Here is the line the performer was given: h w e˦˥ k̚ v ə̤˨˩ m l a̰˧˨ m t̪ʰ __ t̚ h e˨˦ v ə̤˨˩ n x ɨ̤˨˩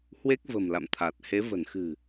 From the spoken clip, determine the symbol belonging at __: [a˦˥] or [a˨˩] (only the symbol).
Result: a˨˩